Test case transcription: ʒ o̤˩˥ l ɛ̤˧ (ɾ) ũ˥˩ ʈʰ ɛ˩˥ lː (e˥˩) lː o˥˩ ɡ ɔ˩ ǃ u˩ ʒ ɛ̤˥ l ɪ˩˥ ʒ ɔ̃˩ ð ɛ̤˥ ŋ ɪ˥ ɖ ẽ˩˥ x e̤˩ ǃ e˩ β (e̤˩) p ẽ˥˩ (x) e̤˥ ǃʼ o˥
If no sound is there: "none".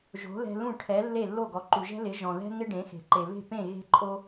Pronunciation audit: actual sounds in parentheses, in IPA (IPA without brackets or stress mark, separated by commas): l, e˥˩, e̤˥˩, ɣ